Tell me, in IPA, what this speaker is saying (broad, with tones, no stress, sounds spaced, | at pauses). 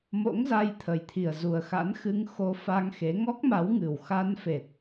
m o̰˧˥ ŋ z a˧ j t̪ʰ ə˨˩ j t̪ʰ i˨˩ ə̯ z u˨˩ ə̯ x a̰˧˥ n x ɨ˧ ŋ x o˧ f a˧ ŋ x e˨˦ ŋ ɔ˦˥ k̚ m a˨˦ w ŋ ɨ˨˩ w x a˧ n f e˨˩ t̚